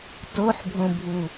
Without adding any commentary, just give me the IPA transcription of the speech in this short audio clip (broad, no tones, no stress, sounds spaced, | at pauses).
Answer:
t o ħ bʱ õ bʱ u